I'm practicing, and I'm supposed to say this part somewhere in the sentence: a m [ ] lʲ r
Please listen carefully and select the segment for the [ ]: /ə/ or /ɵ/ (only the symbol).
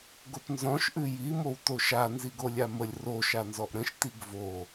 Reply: ə